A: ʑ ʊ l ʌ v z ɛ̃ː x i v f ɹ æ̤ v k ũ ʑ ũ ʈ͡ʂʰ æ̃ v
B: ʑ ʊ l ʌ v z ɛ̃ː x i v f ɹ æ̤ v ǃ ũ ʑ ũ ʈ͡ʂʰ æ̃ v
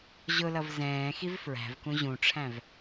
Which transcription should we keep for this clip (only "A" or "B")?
A